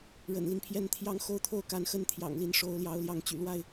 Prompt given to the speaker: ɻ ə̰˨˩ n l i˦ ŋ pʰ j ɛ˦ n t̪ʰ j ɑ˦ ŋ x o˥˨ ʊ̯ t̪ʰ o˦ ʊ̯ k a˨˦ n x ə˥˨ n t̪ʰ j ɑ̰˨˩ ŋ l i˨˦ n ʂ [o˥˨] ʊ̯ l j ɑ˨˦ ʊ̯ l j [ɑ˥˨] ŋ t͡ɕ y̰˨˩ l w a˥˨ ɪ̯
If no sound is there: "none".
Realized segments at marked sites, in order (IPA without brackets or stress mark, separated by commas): o˨˦, ɑ˨˦